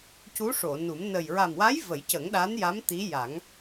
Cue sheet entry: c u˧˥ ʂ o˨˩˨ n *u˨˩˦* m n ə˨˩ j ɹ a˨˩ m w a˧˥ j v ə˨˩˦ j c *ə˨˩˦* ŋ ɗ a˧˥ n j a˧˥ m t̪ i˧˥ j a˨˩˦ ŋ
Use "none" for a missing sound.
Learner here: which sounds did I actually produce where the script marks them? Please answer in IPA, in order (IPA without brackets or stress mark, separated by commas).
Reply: u˨˩˦, ə˨˩˦